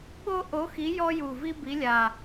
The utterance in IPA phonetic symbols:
ɓ o˦ ʔ o˨˦ x i˨˦ j ɔ˦ j u˨˩ v i˦ b i˨˦ lʲ a˨˩

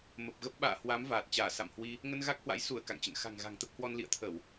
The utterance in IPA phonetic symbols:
m ə˨˩ p̚ ɣ ə˦˥ p̚ ɓ a̰ː˧˨ h w a˨˦ m v aː˨˩ t̚ t͡ɕ aː˧˩ s a̰˧˨ m h w i˧ | ŋ ə˧ n ɣ a˦˥ k̚ h w a̰˧˥ j s u˧˩ ə̯ k a̰˧˨ ŋ t͡ɕ ə̰˧˨ n x a̤˨˩ ŋ ɣ a̤˨˩ ŋ t̪ ə˦˥ p̚ h w ɔ˧ n l ḭ˧˨ ə̯ t̪ʰ ə˧˩˨ w

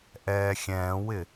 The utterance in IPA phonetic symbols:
ʔ ɛː xʲ ɛ̃ː w ɪ

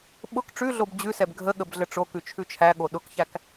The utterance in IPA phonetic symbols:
ɓ ʊ k ʈ͡ʂ ʉ ɮ o b d͡ʑ ʉ s ɛ b ɡʱ ə ɠ ə b ɮ ə ʈ͡ʂ o k ʉ t͡ʃʰ ʉ t͡ʃʰ æ ɠ o ɗ ʊ k ç æ k

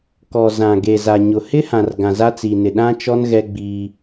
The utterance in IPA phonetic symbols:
k ɔ˨ z ã˨ ɡ e˨ z a˨ ɲ ʊ˨ h ɪ˦ h ã˨ r ɡ ã˨ z a˦ t͡s i˨ n ɪ˨ ɗ ã˦ t͡ʃ ɔ˦ n ɣ ɛ˦ ɡ͡b iː˦

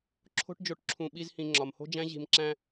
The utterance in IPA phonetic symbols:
ǁʰ o̤˦ ʈ d͡ʒ o˧ ʈ ǁʰ ũ˧ ɓ i˦ z h ĩ˧ ŋ͡ǁ ɒ˨ m h o̤˦ d͡ʒ æ̃˦ ʑ i̤˧ m ǁ æ̃˦

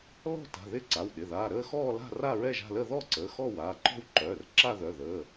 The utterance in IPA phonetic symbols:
l ɔ̤˥˧ t a̤˩˧˩ ð ɪ˥˧ ǀ a˩˧˩ w ɗ ɪ˩˧˩ ð aː˩˧˩ ɾ əː˥˧ x ɔː˥˧ l a̤˥˧ r a˥˧ ɹ ɛ˥˧ ʒ a̤˥˧ l ə˥˧ ð ɔ˥˧ ǀ əː˩˧˩ x ɔ˥˧ w aː˩˧˩ ǃ ɔ̤˥˧ w ǃ œː˩˧˩ r ǁ a˥˧ ð œ˩˧˩ ð əː˩˧˩

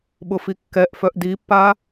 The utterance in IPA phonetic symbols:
ɓ ʊ f i kː ɛ ʔ f œ ʔ d i pː a

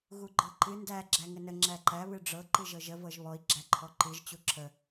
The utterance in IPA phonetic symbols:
ɣ u ɡ͡ǃ ɤ ǃ ɨ n d æ ɡ͡ǁ æ ŋ ə n ə ŋ͡ǁ æ ǃ æ β ɨ ɖ͡ʐ ɤ ǃ ɨ ʒ ɤ ʒ ə v ɤ ʒ β ɔ i̯ ɡ͡ǁ æ ǃʰ ɔ ǃ ɨ ʒ t͡ɕ u ǁʰ ə

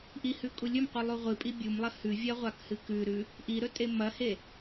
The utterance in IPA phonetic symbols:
ʔ i h ʉ kʼ u lʲ ɵ m qʷ ɨ lˠ u ʁʷ ɨ pʼ i bʲ u m lˠ ɐ h ʉ vʲ ɐ ʁʷ a k h ɨ k ʉ ɾ ʉ | ʔ i ɾ ɵ tʼ e m ɐ h e

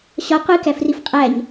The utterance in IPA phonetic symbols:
ɕ ɒ qʷ i k æ f r i f qʼ æ ɲ

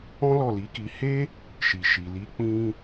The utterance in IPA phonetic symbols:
ɔ̃˦ l ɔ˦˨ l i˨˦ k i˧ h e˦ | ʃ i˨ ʃ i˨ l i˨˦ k͡p ĩ˧

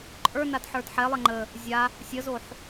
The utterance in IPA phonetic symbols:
ǃʼ ə˞ n a d ħ ə˞ d ħ ɛ lˠ ɛ ŋ͡ǃ ə | zʲ a | sʲ ə z o ħ

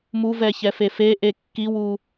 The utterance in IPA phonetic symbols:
m u v ɛ ç ɛ f e f e ʔ e kː i w u

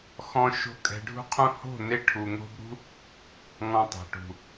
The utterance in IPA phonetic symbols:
x ɔ̃˦ ʃ o̤˦ kʼ ɛ̤˧ ɖʱ ṳ˦ qʰ ũ˦ h o̤˦˨ n e˧ ʈʰ u˨ ŋ o̤˧ b ɾ ṳ˦ | ŋ ɔ̃˧ tˤ a̤˨ ʈ ṳ˨

